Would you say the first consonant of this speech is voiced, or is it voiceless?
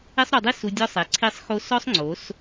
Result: voiceless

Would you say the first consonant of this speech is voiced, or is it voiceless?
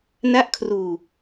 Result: voiced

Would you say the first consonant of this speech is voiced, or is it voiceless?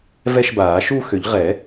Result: voiced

